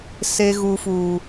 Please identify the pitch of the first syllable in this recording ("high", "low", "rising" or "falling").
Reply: high